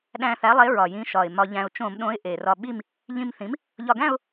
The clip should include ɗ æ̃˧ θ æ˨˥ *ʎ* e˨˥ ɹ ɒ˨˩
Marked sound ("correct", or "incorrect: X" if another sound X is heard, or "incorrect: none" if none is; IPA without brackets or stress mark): incorrect: lˠ